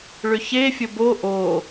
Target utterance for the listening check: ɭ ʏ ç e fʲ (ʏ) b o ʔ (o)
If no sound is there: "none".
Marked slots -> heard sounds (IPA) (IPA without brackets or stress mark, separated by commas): ə, o